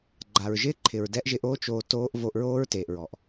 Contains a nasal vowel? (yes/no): no